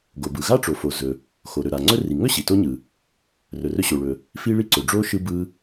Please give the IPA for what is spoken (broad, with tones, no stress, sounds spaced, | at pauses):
ɡ o˩ b ɯ˩ ɣ a˥ ʈ͡ʂ o˩ f o˩ z ɵ˩ | x o˩ ɾ ɵ˩ ɾ a˩ ŋ͡ǀ ɵ˥ r i˩ ŋ ɵ˥ ɕ i˩ t o˥ ɲ ɯ˩ | r ɵ˩ r ɵ˥ ɕ o˩ ɭ ɵ˩ | f i˥ ɭ i˥ ǀ ɵ˩ ɖ͡ʐ o˥ ʃ ɯ˥ b ɯ˥